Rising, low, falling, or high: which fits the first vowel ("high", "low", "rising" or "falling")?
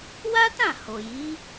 high